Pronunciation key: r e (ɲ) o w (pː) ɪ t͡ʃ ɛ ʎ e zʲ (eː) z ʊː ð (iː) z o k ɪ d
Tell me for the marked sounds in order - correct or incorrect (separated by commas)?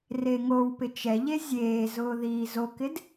incorrect, incorrect, correct, correct